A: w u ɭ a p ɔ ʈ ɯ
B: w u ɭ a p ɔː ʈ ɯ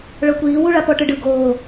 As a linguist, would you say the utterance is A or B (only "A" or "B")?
A